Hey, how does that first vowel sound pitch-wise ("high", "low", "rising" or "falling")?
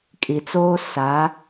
low